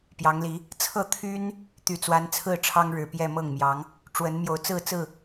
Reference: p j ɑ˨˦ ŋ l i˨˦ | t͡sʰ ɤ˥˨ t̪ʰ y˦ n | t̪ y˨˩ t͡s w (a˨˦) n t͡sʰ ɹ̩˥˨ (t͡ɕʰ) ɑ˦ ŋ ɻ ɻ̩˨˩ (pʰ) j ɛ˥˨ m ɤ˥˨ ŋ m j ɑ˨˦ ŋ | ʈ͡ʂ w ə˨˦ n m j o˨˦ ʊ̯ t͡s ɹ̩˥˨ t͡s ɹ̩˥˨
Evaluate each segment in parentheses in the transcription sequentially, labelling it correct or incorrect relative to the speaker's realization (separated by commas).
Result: correct, incorrect, incorrect